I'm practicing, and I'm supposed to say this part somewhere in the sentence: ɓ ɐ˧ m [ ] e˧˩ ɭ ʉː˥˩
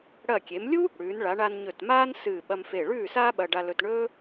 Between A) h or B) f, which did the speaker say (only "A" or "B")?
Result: B